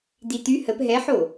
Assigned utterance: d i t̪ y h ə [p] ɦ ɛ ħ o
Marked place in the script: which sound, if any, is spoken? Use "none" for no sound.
p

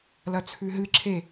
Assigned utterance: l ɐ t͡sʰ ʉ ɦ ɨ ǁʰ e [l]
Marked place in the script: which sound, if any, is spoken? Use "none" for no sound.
none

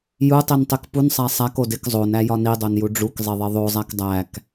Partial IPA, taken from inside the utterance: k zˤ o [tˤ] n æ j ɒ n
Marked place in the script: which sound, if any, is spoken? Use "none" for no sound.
none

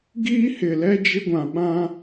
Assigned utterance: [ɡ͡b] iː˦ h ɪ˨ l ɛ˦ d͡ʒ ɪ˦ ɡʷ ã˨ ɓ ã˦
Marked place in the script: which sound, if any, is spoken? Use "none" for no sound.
ɡ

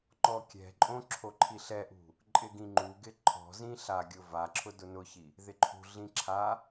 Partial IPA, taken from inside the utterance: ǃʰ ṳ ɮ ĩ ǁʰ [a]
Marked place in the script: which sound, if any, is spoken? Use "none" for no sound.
a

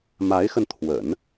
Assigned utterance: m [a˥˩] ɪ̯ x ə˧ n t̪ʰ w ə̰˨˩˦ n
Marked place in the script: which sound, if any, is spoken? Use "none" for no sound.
a˧˥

